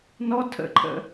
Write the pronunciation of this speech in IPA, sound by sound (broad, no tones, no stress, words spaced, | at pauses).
nɔ tʰə̰ǃʰə̰